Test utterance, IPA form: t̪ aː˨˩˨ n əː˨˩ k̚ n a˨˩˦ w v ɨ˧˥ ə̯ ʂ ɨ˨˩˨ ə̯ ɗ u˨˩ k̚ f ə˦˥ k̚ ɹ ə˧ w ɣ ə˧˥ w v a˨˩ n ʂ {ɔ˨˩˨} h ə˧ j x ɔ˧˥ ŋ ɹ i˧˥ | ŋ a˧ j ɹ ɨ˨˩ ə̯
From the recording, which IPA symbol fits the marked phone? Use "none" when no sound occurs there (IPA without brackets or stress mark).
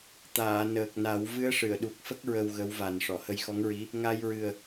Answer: ɔ˨˩˨